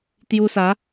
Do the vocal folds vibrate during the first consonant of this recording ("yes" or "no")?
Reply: no